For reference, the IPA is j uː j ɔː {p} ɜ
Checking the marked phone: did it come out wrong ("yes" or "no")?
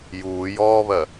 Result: yes